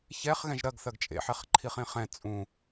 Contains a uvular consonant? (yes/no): yes